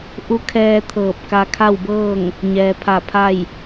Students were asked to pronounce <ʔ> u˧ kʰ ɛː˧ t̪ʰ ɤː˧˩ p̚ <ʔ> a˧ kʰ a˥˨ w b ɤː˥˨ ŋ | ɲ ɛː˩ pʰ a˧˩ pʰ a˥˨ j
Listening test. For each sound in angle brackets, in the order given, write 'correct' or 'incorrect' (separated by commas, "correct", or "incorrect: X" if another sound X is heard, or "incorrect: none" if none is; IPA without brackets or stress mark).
correct, incorrect: k